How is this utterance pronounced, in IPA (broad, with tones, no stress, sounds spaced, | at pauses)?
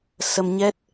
s ə˧ m ɲ ɛ˦˥ t̚